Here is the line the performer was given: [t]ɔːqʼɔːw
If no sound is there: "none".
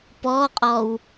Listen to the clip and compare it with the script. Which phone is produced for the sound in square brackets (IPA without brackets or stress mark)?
p